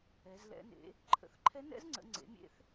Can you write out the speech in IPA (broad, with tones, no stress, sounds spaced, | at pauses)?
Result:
ɛ˩˧ z l ɛ̰˩˧ n ḛ˩˧ | ǃʰ ə̰˩˧ θ ǃʰ ɛ˧˥ n ɛ̰˧˥ z ŋ͡ǀ ə̰˩˧ ŋ͡ǀ ḛ˩˥ mʲ ḛ˧˥ θ